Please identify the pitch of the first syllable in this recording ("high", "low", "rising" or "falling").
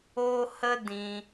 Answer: high